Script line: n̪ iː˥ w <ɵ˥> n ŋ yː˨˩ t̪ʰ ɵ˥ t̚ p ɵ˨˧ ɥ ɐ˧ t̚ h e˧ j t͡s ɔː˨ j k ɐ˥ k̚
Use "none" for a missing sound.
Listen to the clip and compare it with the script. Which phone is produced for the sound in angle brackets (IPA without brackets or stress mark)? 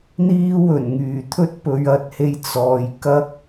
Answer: ɵ˨˩